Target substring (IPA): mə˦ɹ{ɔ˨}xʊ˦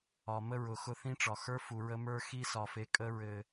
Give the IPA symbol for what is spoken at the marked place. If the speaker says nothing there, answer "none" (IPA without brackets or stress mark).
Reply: ʊ˨